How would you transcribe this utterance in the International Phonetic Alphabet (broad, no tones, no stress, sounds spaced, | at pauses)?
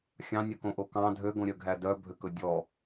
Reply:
xʲ ɑ̃ nʲ ɵ k õ ʔ o k ɑ̃ dʱ ø ɡ õ ɾʲ œ ɡʱ æ d œ bʱ ø k ɵ dʲ ɔ